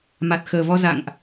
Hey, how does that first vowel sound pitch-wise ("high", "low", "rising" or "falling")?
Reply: low